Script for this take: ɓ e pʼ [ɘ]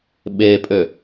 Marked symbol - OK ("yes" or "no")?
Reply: no